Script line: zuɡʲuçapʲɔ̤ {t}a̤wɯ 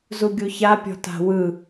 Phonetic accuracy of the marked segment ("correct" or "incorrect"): correct